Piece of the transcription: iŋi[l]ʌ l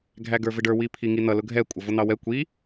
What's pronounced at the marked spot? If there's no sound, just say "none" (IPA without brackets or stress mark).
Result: n̪